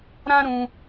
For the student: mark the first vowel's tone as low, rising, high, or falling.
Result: high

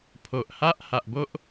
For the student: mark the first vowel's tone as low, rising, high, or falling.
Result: low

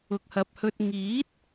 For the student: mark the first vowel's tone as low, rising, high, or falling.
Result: low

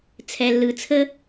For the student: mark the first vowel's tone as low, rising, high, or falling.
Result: low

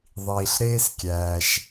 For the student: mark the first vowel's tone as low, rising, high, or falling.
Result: low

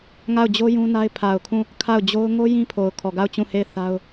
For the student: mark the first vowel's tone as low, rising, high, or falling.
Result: falling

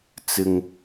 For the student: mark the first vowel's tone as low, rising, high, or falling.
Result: low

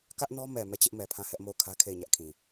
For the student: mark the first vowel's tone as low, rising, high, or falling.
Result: high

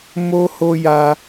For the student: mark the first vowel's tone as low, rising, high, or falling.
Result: high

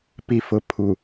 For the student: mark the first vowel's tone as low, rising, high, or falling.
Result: low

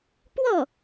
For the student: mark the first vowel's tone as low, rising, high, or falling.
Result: falling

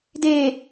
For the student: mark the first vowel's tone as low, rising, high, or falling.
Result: low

